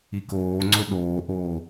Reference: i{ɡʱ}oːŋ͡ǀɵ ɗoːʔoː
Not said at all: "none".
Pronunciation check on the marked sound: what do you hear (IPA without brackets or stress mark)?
k